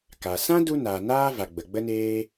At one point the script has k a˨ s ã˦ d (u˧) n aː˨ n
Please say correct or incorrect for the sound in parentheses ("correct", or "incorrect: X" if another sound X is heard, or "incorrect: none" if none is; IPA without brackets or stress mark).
correct